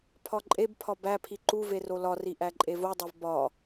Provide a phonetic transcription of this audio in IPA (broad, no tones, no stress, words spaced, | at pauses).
pʰɒǃʼebpʰɒ bæpʰi ǃuve rolɒri ʔæǃʼevodˤev bɒ